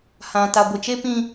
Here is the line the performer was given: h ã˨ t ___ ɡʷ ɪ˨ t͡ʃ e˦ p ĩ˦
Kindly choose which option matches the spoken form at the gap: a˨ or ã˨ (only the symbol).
a˨